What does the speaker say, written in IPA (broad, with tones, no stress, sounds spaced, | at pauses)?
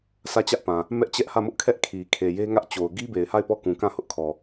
s ä˦˨ t͡ɕ ä˦ ʔ p ã˨ | m ɛ˦ ʔ t͡ɕ ɛ˦ ʔ h ä˦˨ m ʊ˦ ʔ kʰ ɛ˦ ʔ kʰ i˨ kʰ e˨ j e˦ ŋ ä˦ ʔ t͡ɕ o˨ ʊ̯ ɡ i˦ b e˨ ɪ̯ h a˦˨ ɪ̯ p ɔ˦˨ k ũ˨ k ã˦˨ h ʊ˦ ʔ kʰ ɔ˨